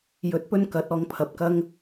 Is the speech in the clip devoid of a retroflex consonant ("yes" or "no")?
yes